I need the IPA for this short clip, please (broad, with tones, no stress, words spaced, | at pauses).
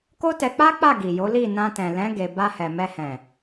ko˦tɛ˧k͡pa˦k͡pa˦˨ ɡi˨jo˨˦li˦˨ nã˧tɛ̃˨lɛ̃˨˦ ɡe˧ ba˧hɛ˨ mɛ˧hɛ̃˨